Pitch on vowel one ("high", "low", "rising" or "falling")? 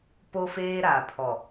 high